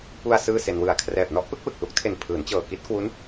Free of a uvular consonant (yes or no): yes